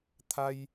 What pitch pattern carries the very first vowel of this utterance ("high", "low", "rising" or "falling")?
high